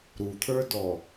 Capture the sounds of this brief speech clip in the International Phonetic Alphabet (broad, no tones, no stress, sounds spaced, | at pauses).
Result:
ɾ u t̪ʰ ə˞ d ɔ